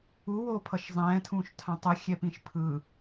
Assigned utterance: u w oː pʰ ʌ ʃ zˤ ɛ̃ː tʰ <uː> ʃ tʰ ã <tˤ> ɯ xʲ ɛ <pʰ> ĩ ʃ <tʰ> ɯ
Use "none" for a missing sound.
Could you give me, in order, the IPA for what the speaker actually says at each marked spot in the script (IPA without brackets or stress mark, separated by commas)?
ũː, tˤ, p, pʰ